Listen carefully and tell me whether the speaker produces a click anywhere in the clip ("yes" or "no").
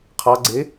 yes